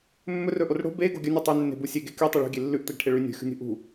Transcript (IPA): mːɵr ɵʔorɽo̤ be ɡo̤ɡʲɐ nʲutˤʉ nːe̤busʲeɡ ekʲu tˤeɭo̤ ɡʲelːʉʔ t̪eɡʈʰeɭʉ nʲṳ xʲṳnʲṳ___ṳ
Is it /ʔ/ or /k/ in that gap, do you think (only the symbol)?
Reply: ʔ